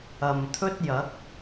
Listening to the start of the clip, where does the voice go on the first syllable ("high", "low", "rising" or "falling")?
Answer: low